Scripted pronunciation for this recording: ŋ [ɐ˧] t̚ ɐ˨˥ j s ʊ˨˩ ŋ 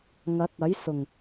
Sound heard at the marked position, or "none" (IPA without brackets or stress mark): ɐ˨˥